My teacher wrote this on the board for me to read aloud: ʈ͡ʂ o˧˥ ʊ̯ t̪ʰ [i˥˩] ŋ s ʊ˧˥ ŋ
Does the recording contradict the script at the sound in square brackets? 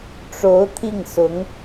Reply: no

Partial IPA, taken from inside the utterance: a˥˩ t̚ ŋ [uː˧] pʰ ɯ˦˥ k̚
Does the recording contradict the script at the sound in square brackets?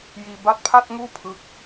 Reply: yes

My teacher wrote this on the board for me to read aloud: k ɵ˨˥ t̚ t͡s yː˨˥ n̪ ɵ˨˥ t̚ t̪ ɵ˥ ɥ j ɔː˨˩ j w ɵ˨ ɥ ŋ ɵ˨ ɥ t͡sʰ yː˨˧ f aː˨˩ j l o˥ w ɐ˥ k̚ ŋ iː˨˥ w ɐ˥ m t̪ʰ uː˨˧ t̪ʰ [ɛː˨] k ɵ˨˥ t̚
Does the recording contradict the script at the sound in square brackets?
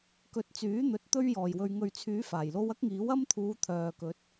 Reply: yes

